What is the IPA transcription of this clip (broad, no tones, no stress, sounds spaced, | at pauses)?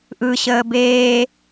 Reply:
ʔ ɯ ɕ əː b eː